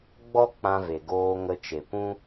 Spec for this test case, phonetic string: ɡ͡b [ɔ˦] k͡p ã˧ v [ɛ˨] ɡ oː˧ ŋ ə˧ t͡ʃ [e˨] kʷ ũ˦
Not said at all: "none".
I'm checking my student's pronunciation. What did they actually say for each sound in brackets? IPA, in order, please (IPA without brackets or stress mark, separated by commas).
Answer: ɔ˦, e˨, e˨